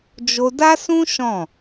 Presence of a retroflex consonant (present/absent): absent